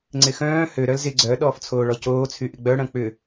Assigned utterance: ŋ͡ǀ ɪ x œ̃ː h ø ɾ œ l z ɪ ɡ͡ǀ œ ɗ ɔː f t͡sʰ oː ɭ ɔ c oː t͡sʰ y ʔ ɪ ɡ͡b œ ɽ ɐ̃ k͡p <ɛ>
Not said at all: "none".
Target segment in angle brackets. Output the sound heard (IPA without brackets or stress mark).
ʏ